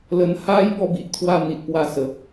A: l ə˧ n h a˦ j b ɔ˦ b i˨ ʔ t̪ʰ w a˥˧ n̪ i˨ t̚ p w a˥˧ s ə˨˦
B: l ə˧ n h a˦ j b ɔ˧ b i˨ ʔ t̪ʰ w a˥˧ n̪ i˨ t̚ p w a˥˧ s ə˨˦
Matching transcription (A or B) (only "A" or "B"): A